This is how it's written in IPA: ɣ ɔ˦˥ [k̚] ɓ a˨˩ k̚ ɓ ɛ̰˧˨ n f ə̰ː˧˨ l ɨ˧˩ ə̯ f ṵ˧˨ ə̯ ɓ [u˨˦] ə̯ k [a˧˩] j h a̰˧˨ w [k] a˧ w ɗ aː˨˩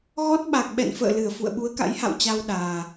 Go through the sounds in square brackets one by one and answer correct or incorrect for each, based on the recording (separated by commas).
incorrect, correct, incorrect, incorrect